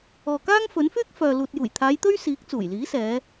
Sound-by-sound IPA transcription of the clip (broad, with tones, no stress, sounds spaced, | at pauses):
ɔː˨ k aː˥ ŋ f ɵ˨˥ n f yː˥ k̚ f œː˨ l uː˨ t̚ j uː˨˩ j t̪ʰ aː˨˧ j t̪ ɵ˥ ɥ s iː˨˥ k̚ t͡s uː˨˩ j l iː˨˥ s ɛː˨˧